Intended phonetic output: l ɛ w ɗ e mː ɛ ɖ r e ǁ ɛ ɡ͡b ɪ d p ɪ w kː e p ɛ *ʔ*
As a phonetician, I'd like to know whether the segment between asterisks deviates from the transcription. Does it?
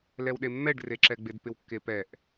no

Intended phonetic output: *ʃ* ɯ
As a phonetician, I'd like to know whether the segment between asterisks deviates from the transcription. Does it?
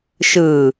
no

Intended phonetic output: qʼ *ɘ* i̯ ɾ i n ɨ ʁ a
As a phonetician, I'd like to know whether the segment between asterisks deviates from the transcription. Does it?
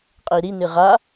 no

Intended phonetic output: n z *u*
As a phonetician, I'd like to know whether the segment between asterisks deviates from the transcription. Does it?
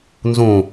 yes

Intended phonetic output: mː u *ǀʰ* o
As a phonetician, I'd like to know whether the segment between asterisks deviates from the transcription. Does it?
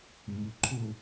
yes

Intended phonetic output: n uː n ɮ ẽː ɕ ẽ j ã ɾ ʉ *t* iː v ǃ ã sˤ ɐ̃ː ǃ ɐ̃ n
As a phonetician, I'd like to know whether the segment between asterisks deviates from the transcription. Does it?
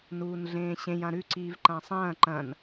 yes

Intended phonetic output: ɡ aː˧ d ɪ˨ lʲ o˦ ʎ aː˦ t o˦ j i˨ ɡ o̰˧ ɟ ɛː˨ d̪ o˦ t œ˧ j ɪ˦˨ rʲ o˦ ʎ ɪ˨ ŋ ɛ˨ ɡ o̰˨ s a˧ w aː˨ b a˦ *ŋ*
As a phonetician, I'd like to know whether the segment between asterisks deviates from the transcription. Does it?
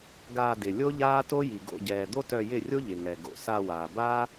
yes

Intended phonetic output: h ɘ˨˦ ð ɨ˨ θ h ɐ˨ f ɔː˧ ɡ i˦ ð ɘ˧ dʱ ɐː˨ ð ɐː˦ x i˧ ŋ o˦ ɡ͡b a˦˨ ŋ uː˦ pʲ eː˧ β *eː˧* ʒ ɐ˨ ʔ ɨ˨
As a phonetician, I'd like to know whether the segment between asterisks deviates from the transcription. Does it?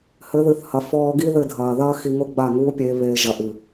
no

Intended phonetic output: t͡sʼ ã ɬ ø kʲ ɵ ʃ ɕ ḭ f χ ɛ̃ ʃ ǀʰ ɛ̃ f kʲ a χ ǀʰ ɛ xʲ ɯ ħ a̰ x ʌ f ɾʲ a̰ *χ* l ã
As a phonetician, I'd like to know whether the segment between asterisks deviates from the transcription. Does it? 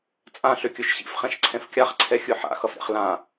no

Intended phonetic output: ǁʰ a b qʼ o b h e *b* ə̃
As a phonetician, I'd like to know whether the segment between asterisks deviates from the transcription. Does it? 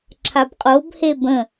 no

